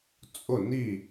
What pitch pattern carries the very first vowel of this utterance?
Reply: falling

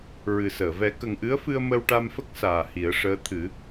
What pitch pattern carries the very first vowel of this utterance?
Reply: low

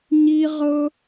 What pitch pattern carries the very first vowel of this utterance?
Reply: high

